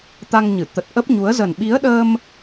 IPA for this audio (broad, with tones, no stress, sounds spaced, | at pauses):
t̪ a˧ ŋ ɲ ɨ˧˩ t̪ ə˨˩ t̚ ʔ ə˦˥ p̚ ɲ u˨˦ ə̯ z ə˨˩ n ɓ i˨˦ ə̯ ɗ əː˧ m